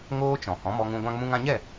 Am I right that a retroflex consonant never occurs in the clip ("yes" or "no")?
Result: yes